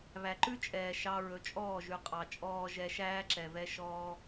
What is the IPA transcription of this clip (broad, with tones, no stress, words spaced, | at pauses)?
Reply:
βæ˨ǃʉ˦t͡ʃʼɛː˨ ʃɑ˧ ɹɵ˨t͡ʃʼɔː˦˨ʒʉ˨ qʼɑ˨t͡ʃʼɔː˧ ʒɛ˧ʃæː˦ǁɛ˨vɛ˧ ʃɔː˧